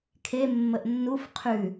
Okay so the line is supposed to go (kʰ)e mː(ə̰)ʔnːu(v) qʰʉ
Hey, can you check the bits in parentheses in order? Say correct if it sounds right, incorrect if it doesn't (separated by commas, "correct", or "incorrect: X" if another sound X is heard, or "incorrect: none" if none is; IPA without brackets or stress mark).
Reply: correct, incorrect: ə, incorrect: f